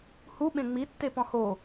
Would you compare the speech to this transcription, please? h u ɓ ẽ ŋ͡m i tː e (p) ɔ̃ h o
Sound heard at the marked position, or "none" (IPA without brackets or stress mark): p